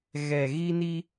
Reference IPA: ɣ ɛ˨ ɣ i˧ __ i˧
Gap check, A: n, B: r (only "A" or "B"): A